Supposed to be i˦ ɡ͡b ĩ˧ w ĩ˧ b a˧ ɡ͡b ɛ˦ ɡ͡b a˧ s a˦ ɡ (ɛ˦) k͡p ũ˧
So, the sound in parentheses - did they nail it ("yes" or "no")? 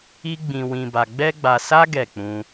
no